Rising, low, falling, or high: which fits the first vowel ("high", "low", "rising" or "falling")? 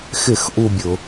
falling